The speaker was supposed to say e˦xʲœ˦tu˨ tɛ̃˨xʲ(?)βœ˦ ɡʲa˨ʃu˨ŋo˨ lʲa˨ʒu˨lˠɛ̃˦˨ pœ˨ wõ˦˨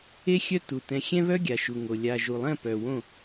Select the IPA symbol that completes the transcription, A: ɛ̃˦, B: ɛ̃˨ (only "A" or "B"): A